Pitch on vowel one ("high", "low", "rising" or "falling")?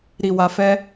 low